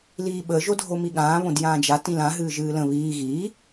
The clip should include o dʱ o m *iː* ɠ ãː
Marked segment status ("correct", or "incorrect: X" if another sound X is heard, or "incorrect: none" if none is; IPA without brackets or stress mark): incorrect: i